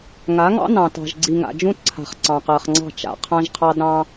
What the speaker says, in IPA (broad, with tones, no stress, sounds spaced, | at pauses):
ŋ a˨˦ ŋ ɑ̰˦ n ɑ̃˨ t ɑ̤˨ ʒ ɡ͡ǀ i˨ ŋ a̰˨ d͡ʒ ũ˦ t ǀʰ a̤˨ χ ǀ ɑ̃˨ q ɜ˨ χ ŋ͡ǀ ɑ̤˦˨ t͡ʃ a̰˨ qʰ ã˦ ʒ qʰ ɑ˦ d ɾ ɑ̃˦